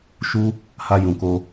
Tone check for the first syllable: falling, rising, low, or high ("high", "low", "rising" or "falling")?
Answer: high